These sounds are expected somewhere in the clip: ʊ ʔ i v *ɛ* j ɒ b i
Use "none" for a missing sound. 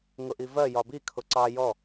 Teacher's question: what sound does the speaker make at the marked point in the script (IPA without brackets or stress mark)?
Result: ɜ